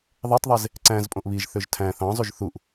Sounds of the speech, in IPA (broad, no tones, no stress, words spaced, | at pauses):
ðˤetˤðˤez | ǀæ̃zpʼõʔ βiʒθøʒ tʰæ̃ θɑ̃zˤyʒ θuʔ